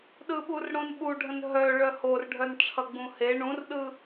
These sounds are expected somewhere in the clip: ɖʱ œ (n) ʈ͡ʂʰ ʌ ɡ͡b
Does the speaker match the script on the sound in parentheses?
yes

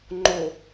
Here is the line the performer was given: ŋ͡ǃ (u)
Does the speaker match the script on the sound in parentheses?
no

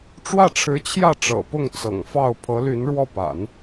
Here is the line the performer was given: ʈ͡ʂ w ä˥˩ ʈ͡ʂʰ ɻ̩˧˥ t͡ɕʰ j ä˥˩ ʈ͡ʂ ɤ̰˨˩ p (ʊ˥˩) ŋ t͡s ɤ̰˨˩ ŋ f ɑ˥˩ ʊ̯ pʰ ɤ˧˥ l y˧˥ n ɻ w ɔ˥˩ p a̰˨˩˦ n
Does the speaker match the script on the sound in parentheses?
yes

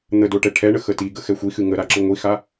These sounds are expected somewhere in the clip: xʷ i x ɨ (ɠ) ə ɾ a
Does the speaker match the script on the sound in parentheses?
no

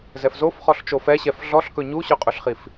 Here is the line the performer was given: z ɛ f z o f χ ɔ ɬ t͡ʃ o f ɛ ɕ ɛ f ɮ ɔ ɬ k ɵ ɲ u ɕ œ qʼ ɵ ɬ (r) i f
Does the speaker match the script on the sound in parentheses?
no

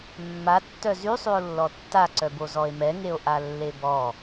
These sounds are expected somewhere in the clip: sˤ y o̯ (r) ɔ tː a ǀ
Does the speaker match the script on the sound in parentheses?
no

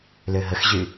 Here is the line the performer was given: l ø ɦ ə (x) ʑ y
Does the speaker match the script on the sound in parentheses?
yes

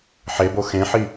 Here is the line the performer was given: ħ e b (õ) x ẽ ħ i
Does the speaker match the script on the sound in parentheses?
no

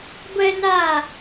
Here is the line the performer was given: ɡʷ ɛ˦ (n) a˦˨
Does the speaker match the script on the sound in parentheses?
yes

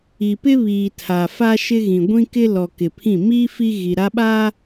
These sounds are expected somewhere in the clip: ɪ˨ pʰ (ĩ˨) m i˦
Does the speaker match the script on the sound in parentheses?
no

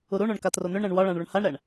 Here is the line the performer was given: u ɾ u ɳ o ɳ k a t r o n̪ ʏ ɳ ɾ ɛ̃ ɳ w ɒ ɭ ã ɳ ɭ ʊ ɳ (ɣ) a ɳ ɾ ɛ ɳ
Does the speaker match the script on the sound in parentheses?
no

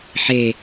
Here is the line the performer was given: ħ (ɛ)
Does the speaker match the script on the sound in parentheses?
no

